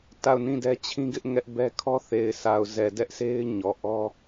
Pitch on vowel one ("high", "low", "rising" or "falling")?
falling